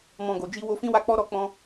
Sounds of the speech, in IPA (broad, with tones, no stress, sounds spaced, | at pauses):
m ɔ̃˨ ɡ o˨ d͡ʒ i˧ w o˧ f ĩ˦ w a˦ k͡p ɔ˦ ɾ ɔ˧ k͡p ɔ̃˧